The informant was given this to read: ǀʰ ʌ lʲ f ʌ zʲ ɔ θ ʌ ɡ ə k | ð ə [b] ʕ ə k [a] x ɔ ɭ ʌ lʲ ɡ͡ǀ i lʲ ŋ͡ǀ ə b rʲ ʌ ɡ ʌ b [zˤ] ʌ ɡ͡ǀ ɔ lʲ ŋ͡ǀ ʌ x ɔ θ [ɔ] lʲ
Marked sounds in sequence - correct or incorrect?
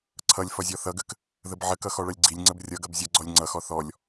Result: correct, incorrect, incorrect, correct

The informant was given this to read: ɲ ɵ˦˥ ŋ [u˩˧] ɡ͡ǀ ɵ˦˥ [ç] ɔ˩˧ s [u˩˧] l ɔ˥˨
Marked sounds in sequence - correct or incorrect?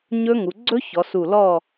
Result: correct, correct, incorrect

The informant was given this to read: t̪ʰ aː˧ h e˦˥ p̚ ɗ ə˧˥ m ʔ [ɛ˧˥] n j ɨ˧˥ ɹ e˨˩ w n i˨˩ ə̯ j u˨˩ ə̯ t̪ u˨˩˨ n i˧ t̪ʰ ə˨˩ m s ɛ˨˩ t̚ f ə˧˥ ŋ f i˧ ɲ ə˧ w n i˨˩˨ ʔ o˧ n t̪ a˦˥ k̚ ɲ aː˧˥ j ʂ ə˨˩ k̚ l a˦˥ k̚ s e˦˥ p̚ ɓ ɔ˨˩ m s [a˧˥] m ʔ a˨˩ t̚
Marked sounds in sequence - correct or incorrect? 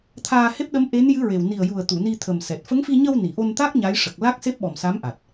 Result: incorrect, correct

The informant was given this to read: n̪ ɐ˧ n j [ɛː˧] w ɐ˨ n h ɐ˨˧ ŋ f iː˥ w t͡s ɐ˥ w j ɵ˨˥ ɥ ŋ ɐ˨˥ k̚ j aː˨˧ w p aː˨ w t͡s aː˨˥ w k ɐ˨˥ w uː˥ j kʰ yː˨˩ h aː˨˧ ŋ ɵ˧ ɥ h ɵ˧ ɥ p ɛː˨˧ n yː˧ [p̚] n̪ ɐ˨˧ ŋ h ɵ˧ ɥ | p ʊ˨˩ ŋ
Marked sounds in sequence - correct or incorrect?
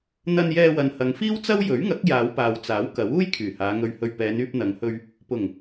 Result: correct, correct

